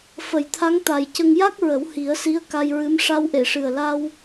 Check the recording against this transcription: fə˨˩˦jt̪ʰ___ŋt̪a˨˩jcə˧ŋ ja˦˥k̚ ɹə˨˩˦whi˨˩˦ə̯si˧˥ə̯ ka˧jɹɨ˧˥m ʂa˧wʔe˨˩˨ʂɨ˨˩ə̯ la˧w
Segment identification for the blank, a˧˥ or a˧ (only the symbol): a˧˥